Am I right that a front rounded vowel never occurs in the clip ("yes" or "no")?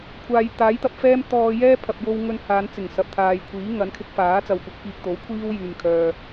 no